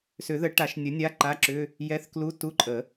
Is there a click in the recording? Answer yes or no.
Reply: yes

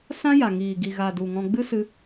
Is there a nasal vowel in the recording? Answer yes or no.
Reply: yes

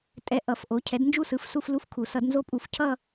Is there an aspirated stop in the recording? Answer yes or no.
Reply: yes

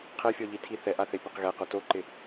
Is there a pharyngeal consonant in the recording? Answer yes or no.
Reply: no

